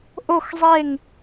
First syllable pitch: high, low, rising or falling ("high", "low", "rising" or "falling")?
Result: falling